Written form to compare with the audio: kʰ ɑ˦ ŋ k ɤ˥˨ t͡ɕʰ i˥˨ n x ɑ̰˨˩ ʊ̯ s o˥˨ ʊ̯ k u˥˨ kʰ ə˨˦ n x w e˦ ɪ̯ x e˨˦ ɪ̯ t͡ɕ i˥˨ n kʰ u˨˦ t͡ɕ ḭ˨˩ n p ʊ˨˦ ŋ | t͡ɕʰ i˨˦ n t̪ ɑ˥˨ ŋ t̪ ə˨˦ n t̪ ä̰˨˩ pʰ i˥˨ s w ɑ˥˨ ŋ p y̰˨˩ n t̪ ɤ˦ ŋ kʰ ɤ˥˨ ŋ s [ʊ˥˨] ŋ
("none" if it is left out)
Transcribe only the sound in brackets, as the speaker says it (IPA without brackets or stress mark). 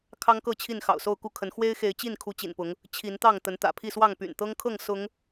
ʊ˨˦